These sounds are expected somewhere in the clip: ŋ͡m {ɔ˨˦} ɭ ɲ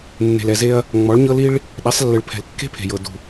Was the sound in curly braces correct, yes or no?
yes